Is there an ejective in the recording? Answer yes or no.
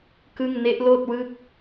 no